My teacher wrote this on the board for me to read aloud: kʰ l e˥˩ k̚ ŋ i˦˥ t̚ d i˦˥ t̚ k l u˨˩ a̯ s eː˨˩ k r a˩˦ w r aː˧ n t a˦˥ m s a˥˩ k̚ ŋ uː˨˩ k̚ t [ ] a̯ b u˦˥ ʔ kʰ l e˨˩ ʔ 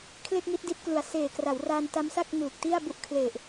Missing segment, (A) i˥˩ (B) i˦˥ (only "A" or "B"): A